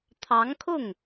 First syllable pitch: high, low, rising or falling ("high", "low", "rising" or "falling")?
rising